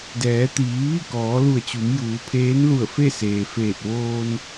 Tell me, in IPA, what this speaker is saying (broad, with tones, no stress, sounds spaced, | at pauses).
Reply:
d ɛː˩˧ t̪ iː˩˧ ʋ i˥˨ k ɔː˩˧ l u˧˩ ə̯ t͡ɕ u˩˧ m j uː˩˧ pʰ eː˧˥ n l u˧˩ ə̯ f e˥˨ s eː˩ f eː˧˩ t̚ ʋ oː˧ n